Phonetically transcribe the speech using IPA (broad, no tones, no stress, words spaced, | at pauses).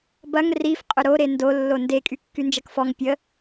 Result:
bɐŋ rif qʼʏɾo ɾendo lːonde kʼykːynd͡ʒɐkfɔŋ pʲə